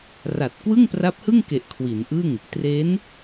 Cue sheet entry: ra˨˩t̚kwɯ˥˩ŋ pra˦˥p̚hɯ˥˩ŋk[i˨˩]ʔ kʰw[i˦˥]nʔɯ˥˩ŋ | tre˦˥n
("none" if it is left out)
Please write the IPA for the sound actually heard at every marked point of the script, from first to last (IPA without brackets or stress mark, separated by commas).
e˨˩, i˩˦